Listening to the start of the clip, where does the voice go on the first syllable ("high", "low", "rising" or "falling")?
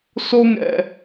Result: high